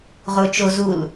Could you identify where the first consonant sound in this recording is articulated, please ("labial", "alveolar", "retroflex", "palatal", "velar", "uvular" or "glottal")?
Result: uvular